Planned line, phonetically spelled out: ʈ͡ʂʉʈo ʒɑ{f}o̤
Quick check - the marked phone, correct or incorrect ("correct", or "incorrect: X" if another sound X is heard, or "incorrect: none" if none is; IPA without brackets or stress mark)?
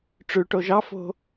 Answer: correct